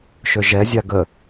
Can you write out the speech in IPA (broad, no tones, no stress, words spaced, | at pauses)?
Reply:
ʃøʒɛ zʲaɡə